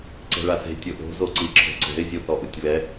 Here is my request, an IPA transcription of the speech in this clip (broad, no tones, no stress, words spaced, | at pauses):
ǀɛ̤ɭase̤ tʲoʔo̤ zoǀiǁʰo̤ǀɛ̤ɪ̯ zʲuθɔʔɯtʲβɛ